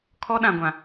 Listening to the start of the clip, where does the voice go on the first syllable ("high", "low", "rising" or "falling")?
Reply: high